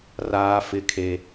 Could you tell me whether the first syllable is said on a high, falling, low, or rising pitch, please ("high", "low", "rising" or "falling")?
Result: high